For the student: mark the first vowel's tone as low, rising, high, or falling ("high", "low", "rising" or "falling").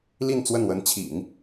falling